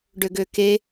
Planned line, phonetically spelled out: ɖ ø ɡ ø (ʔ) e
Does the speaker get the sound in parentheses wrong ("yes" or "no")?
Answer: yes